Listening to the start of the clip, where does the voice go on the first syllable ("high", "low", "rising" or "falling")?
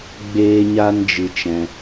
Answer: high